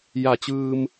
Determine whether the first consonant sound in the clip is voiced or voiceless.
voiced